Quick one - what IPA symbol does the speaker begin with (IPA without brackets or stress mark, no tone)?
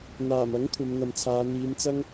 n̪